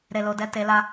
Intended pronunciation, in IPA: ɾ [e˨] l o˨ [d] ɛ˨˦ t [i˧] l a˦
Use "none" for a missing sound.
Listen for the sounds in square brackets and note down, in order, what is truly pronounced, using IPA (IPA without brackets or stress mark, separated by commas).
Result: e˨, d, e˧